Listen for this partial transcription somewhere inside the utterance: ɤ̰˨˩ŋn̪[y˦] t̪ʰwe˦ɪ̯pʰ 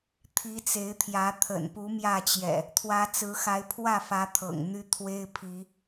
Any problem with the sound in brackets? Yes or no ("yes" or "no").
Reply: no